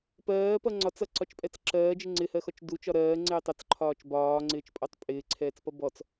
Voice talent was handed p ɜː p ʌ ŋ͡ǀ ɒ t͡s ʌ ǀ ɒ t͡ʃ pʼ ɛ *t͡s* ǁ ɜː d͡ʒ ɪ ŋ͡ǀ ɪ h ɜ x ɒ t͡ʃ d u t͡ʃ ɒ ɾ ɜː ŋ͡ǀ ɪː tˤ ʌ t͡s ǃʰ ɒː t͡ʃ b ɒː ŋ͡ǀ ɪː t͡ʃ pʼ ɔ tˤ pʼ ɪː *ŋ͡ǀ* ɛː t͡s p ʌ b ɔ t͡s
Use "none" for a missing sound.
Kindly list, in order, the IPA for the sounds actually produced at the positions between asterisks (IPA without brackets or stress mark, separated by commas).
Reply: t͡s, ǀʰ